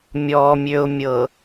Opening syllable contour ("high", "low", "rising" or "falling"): low